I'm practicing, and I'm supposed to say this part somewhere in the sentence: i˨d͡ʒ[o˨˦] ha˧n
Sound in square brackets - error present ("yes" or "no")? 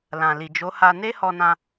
no